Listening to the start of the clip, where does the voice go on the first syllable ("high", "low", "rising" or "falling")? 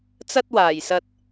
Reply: high